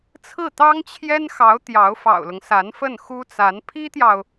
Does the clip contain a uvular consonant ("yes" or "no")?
no